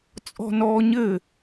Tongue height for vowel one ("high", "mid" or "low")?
mid